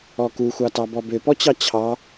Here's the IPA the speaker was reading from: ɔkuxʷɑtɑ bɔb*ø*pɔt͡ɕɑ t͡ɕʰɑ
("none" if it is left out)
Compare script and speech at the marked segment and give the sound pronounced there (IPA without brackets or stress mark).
ø